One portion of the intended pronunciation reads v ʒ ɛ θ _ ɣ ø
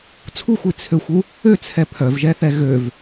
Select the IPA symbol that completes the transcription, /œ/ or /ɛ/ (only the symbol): ɛ